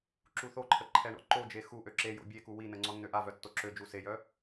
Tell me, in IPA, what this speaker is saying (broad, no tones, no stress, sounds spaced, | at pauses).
ǁ u θ o ǃʰ ə ǃʰ ɛ ɳ ɔ̰ ǃ o d͡ʒ e x u ʔ ø ǁ e j o̰ bʲ e k u w i n ə ŋ͡ǀ ɔ nː ø ʔ a v œ tː o ǁ ø d͡ʒ u s e j œ